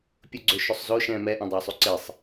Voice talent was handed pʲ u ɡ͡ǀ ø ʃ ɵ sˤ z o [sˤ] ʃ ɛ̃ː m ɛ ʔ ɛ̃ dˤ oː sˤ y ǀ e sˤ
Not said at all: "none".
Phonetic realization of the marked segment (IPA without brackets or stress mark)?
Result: none